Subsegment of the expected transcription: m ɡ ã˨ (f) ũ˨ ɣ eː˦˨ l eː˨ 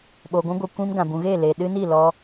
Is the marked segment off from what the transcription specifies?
yes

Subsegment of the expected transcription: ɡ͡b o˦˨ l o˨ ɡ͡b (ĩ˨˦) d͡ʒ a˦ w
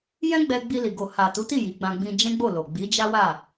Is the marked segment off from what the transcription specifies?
yes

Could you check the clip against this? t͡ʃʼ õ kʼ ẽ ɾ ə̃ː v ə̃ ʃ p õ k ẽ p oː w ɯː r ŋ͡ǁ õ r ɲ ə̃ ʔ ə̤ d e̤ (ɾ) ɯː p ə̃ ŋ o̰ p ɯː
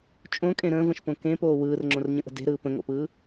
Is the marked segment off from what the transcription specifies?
no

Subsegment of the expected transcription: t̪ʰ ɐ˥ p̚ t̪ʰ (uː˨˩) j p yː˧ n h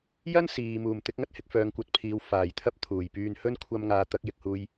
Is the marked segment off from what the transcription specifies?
no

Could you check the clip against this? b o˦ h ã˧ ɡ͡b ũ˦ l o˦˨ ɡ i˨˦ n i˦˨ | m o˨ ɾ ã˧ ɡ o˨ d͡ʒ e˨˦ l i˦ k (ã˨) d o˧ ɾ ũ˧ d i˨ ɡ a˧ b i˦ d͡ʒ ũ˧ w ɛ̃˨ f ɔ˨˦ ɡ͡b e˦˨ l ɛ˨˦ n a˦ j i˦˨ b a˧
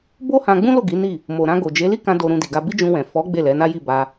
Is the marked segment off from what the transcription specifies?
yes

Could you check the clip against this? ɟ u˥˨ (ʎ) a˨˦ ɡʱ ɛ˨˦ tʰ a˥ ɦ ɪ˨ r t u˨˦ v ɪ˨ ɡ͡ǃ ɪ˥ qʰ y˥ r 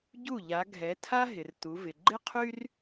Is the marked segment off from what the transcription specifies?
no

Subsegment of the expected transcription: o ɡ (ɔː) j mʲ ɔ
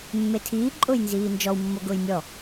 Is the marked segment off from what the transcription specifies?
yes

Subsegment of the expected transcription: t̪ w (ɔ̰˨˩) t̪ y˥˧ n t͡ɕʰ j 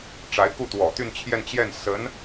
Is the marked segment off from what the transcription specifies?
no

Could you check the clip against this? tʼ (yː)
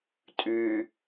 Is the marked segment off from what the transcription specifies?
no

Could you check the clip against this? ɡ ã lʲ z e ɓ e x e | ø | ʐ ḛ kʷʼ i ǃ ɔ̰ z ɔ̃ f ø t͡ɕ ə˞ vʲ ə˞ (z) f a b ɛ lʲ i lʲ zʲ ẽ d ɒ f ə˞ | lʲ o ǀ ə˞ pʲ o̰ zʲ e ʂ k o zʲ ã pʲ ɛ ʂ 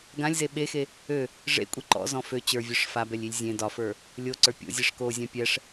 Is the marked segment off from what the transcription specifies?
yes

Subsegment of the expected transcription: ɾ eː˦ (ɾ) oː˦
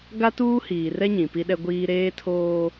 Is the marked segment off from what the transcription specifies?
yes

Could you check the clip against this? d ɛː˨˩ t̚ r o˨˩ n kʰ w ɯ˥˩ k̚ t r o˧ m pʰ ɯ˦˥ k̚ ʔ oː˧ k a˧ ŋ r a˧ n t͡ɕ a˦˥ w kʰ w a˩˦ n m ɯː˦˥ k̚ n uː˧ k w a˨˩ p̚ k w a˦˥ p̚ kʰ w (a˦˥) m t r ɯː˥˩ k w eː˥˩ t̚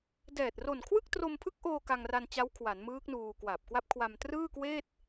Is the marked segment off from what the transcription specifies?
yes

